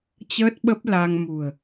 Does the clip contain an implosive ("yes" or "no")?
yes